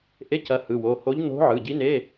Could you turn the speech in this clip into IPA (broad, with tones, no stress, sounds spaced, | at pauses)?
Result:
ʔ e˧˥˧ c ɐ˧˥ h ɯ˩˧˩ w o˩˧˩ h o˧˥ ʎ n o̤˧˥ ʕ ɯ˩˧˩ ɟ i˧˥ n e˧˥˧